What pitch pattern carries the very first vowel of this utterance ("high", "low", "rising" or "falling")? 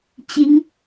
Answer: rising